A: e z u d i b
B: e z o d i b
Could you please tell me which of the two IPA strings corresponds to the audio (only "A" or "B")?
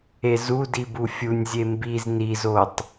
A